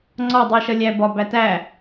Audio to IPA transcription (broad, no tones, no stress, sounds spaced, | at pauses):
ŋ͡ǀ ɒ dˤ i ʃ ʌ lʲ æ b ɒ b æ t æ